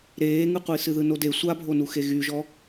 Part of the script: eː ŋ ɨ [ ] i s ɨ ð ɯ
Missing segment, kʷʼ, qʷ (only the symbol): qʷ